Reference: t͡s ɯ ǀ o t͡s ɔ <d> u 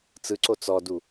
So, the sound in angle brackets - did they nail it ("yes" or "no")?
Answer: yes